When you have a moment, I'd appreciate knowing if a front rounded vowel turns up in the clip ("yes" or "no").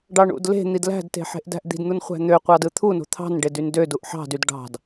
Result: yes